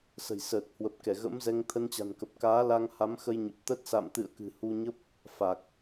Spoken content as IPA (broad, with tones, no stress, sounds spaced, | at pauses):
s ə̤˨˩ j s əː˨˩ t̚ h w ə˨˩ p̚ k ɛ˧˩ ɣ ə̰˧˥ m z ɛ˧ ŋ t̪ʰ ə˧ n t͡ɕ a̤˨˩ n k ə˨˩ p̚ k aː˨˦ l a˧ ŋ h a˨˦ m x ə˧ j ɲ ə˨˩ p̚ t̪ ə˦˥ t̚ s a̰˧˨ m t̪ ɨ̰˧˨ ə̯ k ɨ̤˨˩ h u˧ ɲ ə˦˥ p̚ | f a˨˩ k̚